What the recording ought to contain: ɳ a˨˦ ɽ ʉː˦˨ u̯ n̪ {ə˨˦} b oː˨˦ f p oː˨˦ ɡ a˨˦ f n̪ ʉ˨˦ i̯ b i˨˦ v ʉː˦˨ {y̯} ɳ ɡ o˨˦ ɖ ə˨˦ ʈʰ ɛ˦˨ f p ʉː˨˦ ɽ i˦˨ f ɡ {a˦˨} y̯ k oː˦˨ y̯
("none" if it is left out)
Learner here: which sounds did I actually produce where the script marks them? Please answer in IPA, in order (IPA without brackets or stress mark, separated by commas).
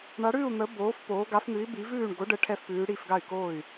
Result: ə˨˦, none, a˦˨